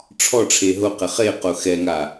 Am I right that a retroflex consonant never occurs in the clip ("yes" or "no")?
no